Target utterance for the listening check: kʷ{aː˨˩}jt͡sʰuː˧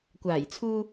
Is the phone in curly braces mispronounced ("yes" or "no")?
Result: no